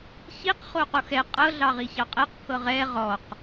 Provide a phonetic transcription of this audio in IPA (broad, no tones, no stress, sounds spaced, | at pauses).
ç i q χ o q o x ɛ qʼ ɤ ɮ ɑ ʁ i ç ɑ qʼ ɛ q pʰ ɤ ʁ ɛ ʁ ɔ q